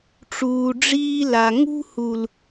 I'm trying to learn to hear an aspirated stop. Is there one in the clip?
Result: no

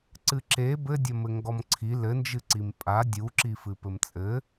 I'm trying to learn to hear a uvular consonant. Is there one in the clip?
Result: no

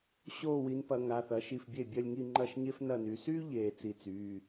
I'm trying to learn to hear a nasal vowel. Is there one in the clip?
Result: no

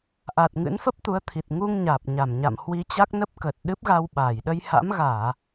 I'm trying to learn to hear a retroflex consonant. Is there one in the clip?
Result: no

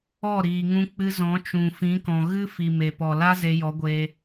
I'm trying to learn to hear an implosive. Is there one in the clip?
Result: no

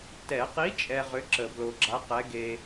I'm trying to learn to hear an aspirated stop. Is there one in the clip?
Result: no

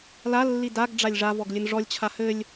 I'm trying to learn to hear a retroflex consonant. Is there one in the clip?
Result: yes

